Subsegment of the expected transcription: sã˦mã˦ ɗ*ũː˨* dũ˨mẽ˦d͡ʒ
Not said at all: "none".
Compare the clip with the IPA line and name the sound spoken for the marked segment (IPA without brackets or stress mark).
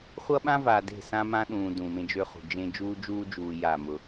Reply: ũː˨